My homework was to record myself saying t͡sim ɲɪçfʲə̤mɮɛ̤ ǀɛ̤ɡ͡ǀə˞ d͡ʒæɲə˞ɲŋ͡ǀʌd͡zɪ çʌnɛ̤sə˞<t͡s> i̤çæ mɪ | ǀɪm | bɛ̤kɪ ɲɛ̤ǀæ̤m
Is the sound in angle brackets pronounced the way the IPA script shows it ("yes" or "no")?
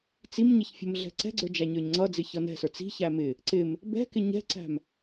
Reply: yes